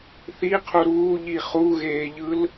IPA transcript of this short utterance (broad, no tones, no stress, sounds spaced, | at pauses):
θ i qʰ u ɾ uː ʎ i χ u ɣ eː ʎ ɯ l